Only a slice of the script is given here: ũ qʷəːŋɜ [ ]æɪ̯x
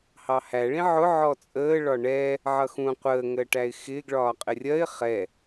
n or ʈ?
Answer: ʈ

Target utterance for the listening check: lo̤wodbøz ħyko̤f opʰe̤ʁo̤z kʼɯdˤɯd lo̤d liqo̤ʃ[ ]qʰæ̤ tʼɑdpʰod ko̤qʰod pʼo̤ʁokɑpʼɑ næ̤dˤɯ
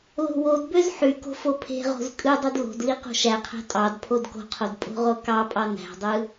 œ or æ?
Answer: æ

